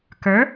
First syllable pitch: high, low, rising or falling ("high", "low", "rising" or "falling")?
rising